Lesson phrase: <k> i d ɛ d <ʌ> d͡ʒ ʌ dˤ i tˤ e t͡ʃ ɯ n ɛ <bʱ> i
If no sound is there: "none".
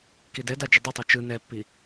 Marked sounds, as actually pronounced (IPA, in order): k, a, pː

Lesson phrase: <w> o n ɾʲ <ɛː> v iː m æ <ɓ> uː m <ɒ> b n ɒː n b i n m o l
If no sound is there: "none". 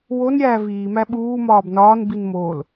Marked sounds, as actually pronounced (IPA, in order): w, æː, ɓ, ɒː

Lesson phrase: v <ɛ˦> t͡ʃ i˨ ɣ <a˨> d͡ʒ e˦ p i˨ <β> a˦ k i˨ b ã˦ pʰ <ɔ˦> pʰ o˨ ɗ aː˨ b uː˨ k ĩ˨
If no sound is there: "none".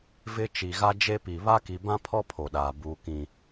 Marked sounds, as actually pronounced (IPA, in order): ɪ˦, a˦, β, ɔ˦

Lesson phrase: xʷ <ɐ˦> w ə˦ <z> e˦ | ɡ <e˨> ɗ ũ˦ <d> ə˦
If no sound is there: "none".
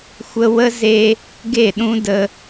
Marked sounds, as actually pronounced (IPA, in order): ə˦, z, e˦˨, d

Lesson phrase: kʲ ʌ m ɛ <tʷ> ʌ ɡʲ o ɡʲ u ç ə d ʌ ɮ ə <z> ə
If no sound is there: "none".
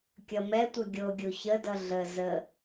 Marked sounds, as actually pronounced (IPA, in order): tʷ, z

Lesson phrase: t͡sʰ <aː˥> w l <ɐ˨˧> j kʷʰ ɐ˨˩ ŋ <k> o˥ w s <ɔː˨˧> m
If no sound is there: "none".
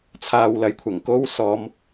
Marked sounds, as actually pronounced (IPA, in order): aː˧, ɐ˨˧, k, ɔː˨˧

